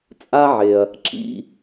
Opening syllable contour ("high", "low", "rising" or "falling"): high